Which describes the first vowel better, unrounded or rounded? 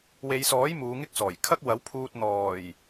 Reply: unrounded